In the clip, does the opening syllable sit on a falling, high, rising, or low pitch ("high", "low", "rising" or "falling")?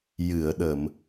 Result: low